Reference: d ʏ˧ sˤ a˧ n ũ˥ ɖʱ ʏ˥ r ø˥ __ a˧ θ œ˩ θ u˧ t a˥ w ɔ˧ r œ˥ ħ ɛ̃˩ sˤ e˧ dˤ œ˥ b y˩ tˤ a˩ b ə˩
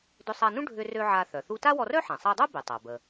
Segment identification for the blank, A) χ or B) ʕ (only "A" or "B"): B